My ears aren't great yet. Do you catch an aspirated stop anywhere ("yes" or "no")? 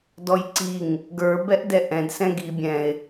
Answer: no